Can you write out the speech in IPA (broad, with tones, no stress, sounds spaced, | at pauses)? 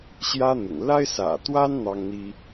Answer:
ɕ j ä˦ n̪ ʊ̰˨˩ ŋ l a˦ ɪ̯ s ä̰˨˩ t̪ w a˦ n n̪ ɑ˦ ŋ n̪ i˦